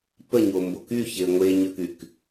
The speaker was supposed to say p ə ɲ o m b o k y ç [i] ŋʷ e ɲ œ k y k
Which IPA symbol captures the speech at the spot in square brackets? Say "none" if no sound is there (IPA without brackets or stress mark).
e